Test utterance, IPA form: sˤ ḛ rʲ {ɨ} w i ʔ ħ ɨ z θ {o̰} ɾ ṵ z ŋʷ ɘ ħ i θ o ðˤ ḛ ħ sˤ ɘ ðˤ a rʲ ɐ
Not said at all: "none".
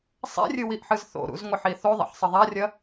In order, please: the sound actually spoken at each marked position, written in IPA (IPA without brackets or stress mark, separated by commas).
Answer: ɨ, o̰